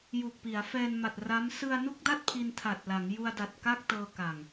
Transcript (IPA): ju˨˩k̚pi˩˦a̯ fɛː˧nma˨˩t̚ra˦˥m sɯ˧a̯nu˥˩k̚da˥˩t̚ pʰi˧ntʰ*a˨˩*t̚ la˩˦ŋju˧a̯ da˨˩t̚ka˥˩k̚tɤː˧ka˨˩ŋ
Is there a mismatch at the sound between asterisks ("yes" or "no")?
no